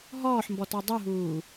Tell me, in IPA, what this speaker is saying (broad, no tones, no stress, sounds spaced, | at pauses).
ɦ ɔː ħ m b ɔ t ɔ dˤ u ɦ uː